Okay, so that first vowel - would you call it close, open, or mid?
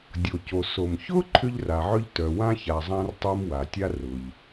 mid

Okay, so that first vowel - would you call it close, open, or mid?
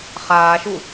open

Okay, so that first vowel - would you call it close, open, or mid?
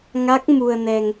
open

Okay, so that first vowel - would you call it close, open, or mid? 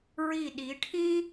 close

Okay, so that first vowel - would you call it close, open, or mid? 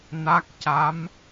open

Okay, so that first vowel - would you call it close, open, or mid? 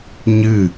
close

